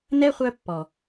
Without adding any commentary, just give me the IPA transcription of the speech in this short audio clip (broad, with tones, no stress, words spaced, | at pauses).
nɛ˦χʷœ˧ pːɔ˨